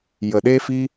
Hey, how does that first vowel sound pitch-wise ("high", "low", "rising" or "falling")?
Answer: low